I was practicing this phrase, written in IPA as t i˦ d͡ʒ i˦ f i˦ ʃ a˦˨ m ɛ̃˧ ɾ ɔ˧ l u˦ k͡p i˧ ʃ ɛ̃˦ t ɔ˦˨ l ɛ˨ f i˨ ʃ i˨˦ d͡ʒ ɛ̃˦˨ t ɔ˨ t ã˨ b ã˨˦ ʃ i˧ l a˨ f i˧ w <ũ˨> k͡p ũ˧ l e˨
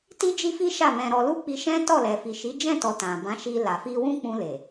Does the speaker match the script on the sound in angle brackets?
no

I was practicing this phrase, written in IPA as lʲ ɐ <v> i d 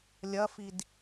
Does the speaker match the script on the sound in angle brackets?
no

